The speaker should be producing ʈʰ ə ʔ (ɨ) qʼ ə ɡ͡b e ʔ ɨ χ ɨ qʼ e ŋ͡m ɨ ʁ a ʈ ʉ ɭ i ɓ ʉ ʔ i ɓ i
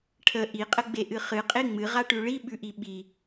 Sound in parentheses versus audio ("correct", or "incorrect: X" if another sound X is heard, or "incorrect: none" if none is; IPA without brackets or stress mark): incorrect: i